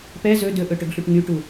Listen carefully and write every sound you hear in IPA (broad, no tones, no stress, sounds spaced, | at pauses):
p ɛ z ɵ d ɵ ʔ ɵ ʈ ɵ ɡ ɬ u ʈ ŋ y ʈ u